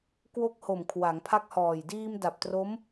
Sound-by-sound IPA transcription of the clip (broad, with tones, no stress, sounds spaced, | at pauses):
k w o˦˥ k̚ h o˨˩ m kʰ w a˩˦ ŋ pʰ a˦˥ k̚ h ɔː˨˩ j d iː˧ m d a˨˩ p̚ t r o˦˥ m